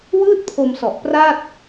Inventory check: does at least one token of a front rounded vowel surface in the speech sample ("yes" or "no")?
no